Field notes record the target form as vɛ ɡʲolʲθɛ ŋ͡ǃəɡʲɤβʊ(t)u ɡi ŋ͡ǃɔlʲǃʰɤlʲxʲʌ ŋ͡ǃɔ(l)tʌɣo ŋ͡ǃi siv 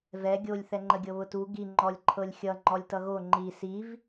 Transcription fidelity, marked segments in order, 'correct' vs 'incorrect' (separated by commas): correct, incorrect